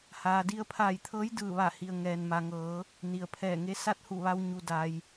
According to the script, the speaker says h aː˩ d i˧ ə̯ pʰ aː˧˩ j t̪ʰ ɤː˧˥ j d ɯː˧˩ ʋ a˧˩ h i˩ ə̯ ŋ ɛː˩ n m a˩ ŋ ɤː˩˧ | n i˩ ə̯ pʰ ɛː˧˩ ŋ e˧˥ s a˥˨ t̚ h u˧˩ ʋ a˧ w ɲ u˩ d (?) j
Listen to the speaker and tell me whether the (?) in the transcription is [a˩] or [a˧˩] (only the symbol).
a˩